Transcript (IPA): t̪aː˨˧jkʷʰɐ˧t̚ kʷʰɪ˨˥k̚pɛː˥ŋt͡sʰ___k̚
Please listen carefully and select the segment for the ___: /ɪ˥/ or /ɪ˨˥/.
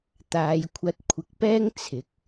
ɪ˨˥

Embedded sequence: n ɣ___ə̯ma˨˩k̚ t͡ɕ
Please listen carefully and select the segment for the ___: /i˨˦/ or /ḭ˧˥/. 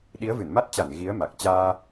i˨˦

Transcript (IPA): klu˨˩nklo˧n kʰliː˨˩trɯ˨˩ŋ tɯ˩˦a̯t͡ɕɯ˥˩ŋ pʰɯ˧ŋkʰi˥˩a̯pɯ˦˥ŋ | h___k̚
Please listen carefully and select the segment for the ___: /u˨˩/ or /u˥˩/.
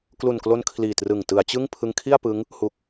u˨˩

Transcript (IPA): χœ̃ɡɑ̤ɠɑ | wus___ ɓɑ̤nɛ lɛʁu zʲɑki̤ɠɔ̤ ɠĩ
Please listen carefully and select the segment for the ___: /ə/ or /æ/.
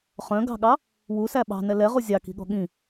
æ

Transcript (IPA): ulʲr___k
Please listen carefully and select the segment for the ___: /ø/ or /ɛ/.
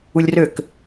ø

